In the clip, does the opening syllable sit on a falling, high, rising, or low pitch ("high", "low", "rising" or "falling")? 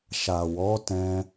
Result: low